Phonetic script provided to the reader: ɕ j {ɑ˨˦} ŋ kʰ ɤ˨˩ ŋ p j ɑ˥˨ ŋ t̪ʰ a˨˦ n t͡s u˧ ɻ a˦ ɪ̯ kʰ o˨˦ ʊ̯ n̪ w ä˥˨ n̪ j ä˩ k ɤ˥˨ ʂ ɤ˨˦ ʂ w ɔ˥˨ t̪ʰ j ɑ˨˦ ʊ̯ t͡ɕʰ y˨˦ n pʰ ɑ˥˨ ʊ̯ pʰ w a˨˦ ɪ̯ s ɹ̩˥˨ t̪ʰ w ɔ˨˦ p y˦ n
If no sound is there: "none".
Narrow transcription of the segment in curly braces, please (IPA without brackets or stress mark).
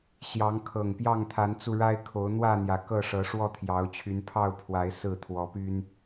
ɑ˨˦